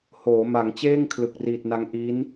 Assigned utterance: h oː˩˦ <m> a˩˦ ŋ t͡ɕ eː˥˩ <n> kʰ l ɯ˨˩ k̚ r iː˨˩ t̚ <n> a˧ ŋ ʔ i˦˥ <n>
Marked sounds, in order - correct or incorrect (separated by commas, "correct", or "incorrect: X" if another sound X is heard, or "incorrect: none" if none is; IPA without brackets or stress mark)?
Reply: correct, incorrect: ŋ, correct, correct